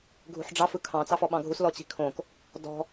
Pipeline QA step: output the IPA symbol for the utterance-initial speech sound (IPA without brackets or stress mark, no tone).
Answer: ɡʱ